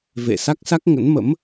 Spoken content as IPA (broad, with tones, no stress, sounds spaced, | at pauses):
v ḛ˧˨ s a˦˥ k̚ s a˦˥ k̚ ŋ ə̰˧˥ n m ə̰˧˥ m